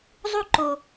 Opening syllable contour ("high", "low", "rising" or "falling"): high